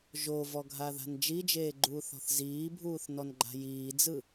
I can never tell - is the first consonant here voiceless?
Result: no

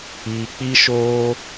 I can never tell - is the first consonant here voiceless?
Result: yes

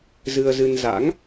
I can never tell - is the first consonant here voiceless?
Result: no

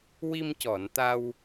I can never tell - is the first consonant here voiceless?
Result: no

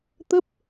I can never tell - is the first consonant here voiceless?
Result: yes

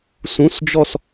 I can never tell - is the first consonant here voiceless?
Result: yes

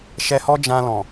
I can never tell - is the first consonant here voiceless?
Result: yes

